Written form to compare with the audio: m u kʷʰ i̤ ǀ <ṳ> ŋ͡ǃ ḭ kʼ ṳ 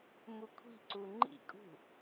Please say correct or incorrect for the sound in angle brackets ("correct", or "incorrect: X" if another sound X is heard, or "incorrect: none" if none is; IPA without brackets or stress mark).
incorrect: u